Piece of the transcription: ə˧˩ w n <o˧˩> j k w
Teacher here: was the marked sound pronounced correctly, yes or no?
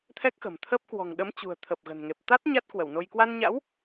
no